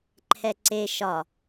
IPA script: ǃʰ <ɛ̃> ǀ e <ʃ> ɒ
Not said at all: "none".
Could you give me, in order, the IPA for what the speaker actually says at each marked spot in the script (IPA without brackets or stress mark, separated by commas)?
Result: ɛ, ʃ